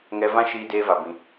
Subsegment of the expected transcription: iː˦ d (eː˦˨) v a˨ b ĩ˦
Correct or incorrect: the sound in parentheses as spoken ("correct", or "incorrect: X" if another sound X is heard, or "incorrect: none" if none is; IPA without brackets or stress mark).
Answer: incorrect: eː˦